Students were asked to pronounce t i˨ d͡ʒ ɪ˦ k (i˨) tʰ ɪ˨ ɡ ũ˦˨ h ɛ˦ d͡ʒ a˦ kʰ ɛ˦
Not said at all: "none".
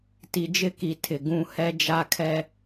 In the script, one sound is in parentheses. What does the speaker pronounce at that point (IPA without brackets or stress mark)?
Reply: i˨